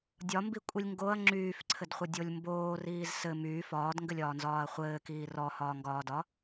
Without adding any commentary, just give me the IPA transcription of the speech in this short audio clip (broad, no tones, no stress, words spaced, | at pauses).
dʲɒmbikʷʼilʲ ŋɡoɐ̯ ŋ͡ǁyːfǀʰɘdχʷɘdʲolʲ mboːriːz sɘ myː fɒːdŋɡɘlʲɒːnzɒːɐ̯ χʷɘːkiː rɔhɒːŋɡɒːdɒ